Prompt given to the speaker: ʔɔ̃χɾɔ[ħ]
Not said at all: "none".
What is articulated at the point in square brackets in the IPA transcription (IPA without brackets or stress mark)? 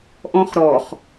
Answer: χ